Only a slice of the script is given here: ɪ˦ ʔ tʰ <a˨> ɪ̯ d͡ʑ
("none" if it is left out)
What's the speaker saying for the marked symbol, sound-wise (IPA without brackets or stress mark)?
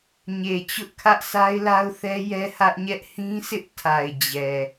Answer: a˨